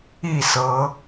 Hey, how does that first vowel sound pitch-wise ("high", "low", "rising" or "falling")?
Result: falling